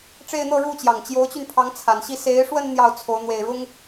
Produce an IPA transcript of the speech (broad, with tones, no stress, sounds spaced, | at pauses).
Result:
ʈ͡ʂ e˥˧ ɪ̯ n̪ ɤ˥˧ ɻ u˥˩ t͡ɕ j ɑ˨˩ ŋ t͡ɕ j o˧˥ ʊ̯ t͡ɕ y˧ n pʰ ɑ˧˥ ŋ t͡sʰ a˨˩ n ɕ i˥˩ s e˧˥ ɪ̯ ʂ w ə˥˧ n n̪ j ɑ˥˩ ʊ̯ t͡sʰ o˧˥ ʊ̯ n̪ w e˨˩ ɪ̯ ɻ ʊ˥ ŋ